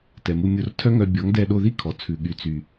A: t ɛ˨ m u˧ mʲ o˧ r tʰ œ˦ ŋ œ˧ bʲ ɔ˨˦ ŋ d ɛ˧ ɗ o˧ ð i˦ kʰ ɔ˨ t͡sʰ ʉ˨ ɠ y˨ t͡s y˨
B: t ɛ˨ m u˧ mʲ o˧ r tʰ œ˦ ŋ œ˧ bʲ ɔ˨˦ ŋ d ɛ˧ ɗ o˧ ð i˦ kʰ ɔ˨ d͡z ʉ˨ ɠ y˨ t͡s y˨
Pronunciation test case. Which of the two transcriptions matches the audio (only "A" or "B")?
A